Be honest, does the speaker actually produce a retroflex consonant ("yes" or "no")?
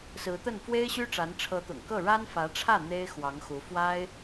yes